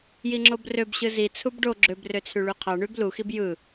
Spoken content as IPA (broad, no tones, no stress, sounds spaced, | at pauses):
j i ŋ͡ǁ o b r ø b ɕ ɯ z i t͡sʰ u b ɖ o ɡ͡ǁ ø b r ø t͡sʰ y ɭ y qʰ ɑ ɳ y b l u x i b j ɯ